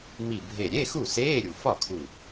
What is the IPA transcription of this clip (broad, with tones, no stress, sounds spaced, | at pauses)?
m i˧˩ bʱ e˧˩ ɾʲ e˧˥˧ x u˥˩ s eː˧˥˧ ɾʲ u˩ f ɒ˥˩ kʰ u˧˩